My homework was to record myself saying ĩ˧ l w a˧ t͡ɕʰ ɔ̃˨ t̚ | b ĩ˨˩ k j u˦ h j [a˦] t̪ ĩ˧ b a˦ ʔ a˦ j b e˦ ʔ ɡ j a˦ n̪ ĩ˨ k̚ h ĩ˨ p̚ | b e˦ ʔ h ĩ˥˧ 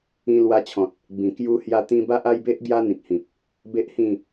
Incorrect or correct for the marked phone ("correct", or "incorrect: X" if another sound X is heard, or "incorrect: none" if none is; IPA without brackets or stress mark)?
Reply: incorrect: a˧